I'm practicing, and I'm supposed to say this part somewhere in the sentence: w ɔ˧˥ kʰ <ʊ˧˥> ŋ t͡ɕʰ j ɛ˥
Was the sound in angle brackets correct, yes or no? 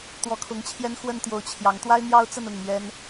yes